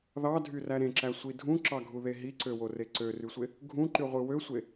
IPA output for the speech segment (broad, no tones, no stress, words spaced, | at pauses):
ðɑdʱyræ ɾẽǁæsʷi dʱũǁɑɡʱuðe ɦiǀøwore ǀørysʷe | ɡʱũǃyʁʷɯ wøsʷe